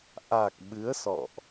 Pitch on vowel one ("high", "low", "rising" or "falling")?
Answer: low